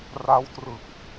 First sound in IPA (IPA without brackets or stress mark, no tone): r